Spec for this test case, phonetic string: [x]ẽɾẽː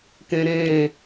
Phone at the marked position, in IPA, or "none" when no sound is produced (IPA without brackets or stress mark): k